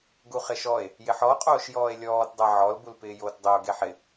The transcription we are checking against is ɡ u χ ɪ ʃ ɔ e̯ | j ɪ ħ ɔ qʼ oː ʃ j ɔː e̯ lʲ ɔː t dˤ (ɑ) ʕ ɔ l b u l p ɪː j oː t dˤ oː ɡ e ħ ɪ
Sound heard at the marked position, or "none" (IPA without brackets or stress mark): a